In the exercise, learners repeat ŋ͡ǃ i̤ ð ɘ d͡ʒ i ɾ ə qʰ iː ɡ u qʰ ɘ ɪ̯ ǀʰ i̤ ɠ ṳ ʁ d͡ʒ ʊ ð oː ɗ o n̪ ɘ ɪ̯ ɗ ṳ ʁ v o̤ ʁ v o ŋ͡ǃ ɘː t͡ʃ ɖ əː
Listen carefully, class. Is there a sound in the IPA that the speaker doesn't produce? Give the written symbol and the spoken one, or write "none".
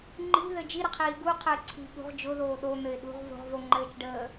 none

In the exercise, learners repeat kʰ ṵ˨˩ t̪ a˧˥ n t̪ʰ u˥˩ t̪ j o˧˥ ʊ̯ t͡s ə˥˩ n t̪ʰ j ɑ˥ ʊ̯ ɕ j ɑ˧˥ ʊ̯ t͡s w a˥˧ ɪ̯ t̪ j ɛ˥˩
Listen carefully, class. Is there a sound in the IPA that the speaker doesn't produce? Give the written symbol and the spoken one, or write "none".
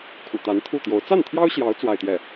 ə˥˩ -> a˥˩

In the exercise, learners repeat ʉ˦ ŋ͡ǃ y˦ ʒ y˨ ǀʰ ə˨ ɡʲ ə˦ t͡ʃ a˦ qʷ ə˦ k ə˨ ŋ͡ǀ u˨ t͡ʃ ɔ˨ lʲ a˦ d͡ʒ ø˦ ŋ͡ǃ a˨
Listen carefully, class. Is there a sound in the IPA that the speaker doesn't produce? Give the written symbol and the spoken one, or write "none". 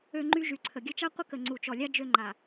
ʉ˦ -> ø˦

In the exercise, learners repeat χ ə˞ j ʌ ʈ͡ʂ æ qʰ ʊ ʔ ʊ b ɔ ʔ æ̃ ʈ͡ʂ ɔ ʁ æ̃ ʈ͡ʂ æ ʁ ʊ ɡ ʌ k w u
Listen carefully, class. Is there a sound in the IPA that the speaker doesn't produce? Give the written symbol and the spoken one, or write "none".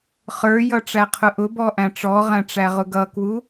none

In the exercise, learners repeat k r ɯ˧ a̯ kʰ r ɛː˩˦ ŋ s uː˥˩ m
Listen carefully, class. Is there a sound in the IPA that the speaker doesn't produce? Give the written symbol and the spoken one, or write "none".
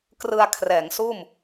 none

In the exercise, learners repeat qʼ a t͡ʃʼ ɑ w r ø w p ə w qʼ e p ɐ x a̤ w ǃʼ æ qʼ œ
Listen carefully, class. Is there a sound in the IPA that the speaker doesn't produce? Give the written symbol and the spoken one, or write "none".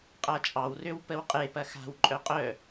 æ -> œ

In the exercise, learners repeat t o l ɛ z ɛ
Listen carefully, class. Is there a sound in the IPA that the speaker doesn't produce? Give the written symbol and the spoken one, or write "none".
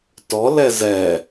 o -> ɔ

